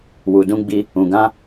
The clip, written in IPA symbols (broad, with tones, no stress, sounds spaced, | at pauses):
w u˨ d ũ˧ ɡ͡b i˧ | ũ˨ ɡ ã˧